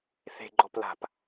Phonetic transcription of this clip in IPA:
θ e̤ ɡ͡ǃ ɔ p l a̤ p

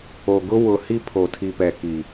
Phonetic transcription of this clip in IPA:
o˨ ɡ ʊ˦ w ʊ˨ h i˦ pʰ o˨ tʰ i˨ p ɛ˨ k i˨

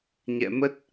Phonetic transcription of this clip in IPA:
ɲ ɛ̰˧˨ m ə˦˥ t̚

